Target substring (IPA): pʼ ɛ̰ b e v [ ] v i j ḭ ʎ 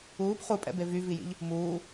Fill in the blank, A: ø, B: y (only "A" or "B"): B